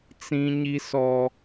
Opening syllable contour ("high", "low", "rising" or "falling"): high